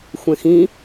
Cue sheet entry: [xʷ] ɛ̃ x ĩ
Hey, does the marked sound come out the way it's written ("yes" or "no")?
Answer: yes